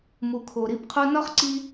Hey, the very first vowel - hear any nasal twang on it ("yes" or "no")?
no